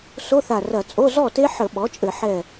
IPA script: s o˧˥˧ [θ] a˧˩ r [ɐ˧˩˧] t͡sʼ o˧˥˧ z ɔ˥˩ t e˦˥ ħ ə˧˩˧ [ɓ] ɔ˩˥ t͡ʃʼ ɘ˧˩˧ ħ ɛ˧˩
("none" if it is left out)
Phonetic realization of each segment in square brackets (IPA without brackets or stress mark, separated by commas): θ, ɐ˧˩˧, ɓ